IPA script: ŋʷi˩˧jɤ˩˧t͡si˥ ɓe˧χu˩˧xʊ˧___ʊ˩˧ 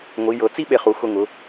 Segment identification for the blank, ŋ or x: ŋ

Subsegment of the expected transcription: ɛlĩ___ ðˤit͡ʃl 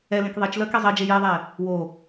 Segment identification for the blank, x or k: k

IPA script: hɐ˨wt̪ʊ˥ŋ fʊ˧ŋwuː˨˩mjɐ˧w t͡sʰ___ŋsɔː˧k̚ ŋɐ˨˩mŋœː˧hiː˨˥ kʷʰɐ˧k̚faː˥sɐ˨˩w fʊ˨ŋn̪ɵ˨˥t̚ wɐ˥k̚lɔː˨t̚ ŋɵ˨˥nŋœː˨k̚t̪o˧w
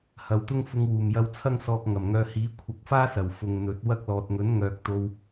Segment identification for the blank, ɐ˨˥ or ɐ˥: ɐ˥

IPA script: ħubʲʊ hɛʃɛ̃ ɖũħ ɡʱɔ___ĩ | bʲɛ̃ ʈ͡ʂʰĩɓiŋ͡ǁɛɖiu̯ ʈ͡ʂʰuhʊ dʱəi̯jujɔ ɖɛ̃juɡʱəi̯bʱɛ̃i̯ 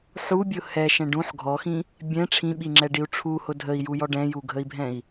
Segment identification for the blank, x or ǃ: x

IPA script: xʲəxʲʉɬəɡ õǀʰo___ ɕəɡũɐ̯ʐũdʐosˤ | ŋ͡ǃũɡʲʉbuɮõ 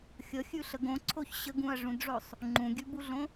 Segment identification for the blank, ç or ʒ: ç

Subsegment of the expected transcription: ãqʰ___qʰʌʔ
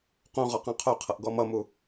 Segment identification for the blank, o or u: o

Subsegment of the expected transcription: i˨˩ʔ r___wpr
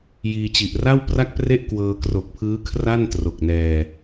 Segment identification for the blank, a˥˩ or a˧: a˥˩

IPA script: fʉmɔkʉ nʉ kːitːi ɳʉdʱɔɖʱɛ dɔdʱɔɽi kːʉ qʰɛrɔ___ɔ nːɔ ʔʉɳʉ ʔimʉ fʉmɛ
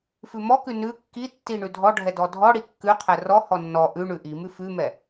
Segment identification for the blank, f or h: h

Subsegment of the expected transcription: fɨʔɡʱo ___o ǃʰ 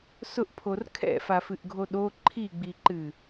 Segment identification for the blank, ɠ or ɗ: ɗ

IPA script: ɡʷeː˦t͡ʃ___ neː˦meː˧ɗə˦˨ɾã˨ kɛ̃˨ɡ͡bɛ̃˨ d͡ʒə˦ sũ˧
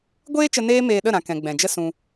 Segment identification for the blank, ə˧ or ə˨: ə˧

